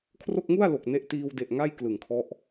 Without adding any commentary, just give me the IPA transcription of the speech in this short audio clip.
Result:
kʰ r o˥˩ k̚ ŋ u˥˩ a̯ l o˨˩ k̚ n e˦˥ ʔ t iː˧ w d e˨˩ ʔ ŋ a˥˩ j k l ɯ˨˩ ŋ kʰ ɔ˦˥ ʔ

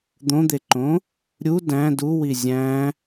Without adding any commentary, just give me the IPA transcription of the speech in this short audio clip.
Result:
d̪ õ d̪ e ǃ õ | ɾʲ u d æ̃ d u w i zʲ æ̃

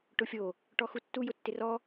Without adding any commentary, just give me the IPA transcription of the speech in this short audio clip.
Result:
ʈ ʊ fʲ o | ʈ ɔ x u tː u j ʊ tː ɪ r ɔ

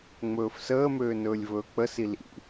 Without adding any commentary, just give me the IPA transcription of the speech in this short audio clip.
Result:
ŋ͡m ɵː f s əː m øː n ɵː lʲ v ɵː k͡p ə s i l ḭ

